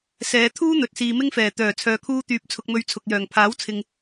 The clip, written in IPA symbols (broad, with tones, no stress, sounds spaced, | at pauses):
s ɛː˨˧ t̪ʰ uː˥ n̪ ɵ˨˥ t̚ s iː˨ m ɪ˥ ŋ f ɛː˨˩ t̪ œː˨˩ t͡sʰ œː˨ kʰ uː˧ t̪ yː˨ p̚ t͡sʰ ʊ˧ k̚ m ɵ˧ ɥ t͡sʰ ʊ˨ k̚ j œː˨˩ ŋ pʰ aː˨˥ w t͡sʰ ɪ˨ ŋ